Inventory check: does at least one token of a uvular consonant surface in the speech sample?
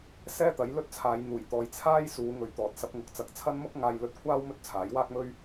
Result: no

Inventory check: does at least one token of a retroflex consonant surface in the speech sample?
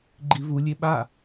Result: no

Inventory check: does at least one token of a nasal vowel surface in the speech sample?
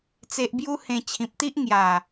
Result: yes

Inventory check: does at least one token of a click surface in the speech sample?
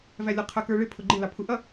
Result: yes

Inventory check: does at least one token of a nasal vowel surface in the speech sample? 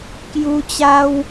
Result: no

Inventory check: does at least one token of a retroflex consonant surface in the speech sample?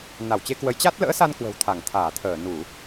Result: no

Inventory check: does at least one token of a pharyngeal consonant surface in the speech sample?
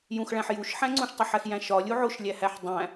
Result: yes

